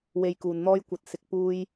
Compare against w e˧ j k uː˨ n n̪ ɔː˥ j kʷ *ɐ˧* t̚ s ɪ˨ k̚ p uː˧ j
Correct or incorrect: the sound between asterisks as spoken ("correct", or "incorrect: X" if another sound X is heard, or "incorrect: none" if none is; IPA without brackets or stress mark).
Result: correct